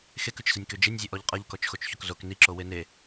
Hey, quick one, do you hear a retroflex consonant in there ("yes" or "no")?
no